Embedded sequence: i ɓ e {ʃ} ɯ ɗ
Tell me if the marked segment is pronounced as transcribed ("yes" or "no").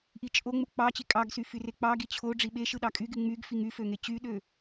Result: yes